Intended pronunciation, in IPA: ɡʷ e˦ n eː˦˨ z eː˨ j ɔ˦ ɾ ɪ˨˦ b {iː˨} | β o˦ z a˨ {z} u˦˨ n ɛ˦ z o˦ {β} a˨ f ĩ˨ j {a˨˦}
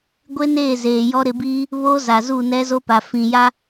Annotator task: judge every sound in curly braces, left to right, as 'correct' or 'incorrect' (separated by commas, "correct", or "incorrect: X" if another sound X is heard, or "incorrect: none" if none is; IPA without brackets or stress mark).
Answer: incorrect: iː˦, correct, incorrect: p, incorrect: a˦